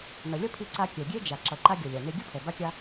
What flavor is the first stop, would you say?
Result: aspirated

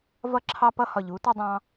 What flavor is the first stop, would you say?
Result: click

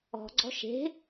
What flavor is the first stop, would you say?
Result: click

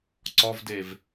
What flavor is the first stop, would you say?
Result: click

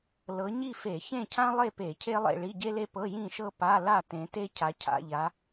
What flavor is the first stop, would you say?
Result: aspirated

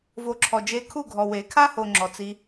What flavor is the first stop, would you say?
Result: click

